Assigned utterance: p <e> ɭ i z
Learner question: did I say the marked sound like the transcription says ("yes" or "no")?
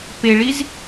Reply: yes